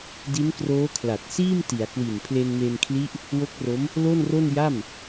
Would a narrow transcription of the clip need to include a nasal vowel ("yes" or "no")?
no